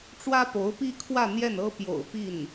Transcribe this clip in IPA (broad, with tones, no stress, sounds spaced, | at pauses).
ʈ͡ʂ w ä˥ p o˧˥ ʊ̯ p i˥ kʰ w ä˥˧ n̪ j ɛ˥˩ n ɤ˥ p j o̰˨˩ ʊ̯ p i˥˩ n